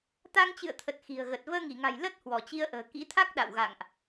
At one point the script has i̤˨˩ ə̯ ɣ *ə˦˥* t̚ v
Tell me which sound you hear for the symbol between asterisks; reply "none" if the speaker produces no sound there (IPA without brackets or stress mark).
ə˨˩